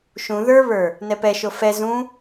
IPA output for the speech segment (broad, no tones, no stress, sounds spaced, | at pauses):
ʃ ũ ð ə˞ β ə˞ | n ɛ p ɛ ʃ o f ɛ z ũ